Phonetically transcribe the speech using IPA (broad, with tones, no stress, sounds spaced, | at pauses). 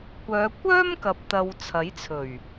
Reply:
kʷ œː˨˧ kʷ œː˥ m k ɐ˨ p̚ t̪ ɐ˨ w t͡sʰ ɐ˨˥ j t͡sʰ ɵ˨˩ ɥ